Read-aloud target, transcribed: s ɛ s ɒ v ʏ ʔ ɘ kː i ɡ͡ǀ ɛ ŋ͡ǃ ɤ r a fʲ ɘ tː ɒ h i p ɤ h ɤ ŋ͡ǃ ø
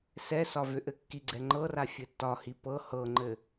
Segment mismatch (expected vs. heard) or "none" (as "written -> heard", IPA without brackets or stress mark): ø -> ɘ